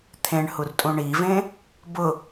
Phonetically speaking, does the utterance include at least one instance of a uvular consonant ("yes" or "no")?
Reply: no